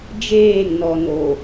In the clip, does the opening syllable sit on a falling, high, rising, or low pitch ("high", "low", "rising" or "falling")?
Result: falling